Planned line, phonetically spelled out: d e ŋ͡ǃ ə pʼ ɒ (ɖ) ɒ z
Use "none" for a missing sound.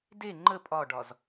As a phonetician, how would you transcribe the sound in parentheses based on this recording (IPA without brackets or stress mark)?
ɖ